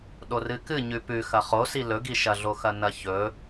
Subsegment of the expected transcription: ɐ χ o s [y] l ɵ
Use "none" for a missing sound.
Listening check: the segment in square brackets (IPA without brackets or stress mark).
i